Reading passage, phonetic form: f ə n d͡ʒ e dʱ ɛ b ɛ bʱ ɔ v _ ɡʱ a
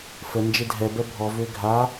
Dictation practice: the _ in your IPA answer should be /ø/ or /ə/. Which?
ø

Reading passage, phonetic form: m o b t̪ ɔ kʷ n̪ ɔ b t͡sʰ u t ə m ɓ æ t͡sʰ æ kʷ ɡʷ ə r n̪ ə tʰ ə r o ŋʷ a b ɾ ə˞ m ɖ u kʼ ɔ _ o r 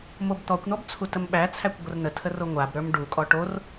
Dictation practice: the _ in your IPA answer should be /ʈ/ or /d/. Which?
ʈ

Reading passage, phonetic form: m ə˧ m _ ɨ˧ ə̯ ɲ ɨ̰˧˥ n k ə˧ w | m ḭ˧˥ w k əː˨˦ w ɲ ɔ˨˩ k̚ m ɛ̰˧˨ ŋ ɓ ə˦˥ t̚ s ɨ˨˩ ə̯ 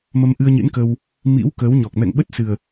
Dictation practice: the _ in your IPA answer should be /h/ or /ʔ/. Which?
ʔ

